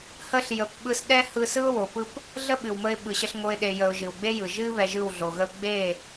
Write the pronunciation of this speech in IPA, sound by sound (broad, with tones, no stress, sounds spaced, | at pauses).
h ə˧ ɬ j ə˨ p ɓ ɯ˧ s ɗ ɛ˦ h ɯ˧ s ɯ˦ ʊ̯ w o˨ p ɯ˦ p | ɮ ə˦ ɓ ɨ˨ w m ə˧ ɪ̯ ɓ ɯ˨ ɕ ə˧ ɬ ŋ o˧ ɪ̯ ɗ e˨ j ə˨ ʊ̯ ʒ ɨ˨ w ɡ͡b e˦ j ɯ˨ ʒ ɨ˧ β ɛ˧ ʒ ɯ˦˨ w ɮ o˨ ɣ ə˦ ʊ̯ ɡ͡b e˦˨